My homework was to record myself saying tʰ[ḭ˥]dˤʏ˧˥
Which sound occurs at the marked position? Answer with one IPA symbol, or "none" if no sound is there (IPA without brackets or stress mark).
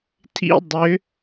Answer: ḭ˥